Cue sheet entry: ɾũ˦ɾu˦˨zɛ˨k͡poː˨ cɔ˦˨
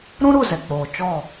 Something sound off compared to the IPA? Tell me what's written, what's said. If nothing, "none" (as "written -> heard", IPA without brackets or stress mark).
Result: c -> t͡ʃ